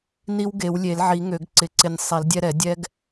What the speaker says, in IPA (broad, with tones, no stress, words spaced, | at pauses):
ni˦wɡe˨˩˦wlʲe˨˩˦lʕi˨˩˦ ŋø˨˩˦ɡǀɪ˨˩˦ǀɪ˧˩nʲ sˤi˨˩˦ldʲɛ˦ɾɛ˨˩˦ dʲɛ˦ɡ